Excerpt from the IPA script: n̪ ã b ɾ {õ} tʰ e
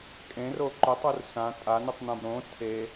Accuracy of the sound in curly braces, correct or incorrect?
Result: correct